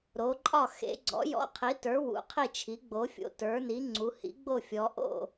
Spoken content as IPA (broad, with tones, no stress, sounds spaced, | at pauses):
ɾ o˩˥ ǃʼ ɒ˥˩ x ḛ˩˥ ɡ͡ǀ ɔ̰˩˥ j ɔ̰˩˥ qʰ i˩˥ t ə˞˩˥ w ṵ˩˧ qʰ i˥˩ t͡ʃʰ i˩˥ ɡ͡b o˩˥ fʲ o̰˩˧ t ə˞˩˥ n i˩˥ ŋ͡ǀ u˩˧ h ḭ˩˥ ɡ͡b o˥˩ fʲ ɔ˩˧ ʔ o̰˥˩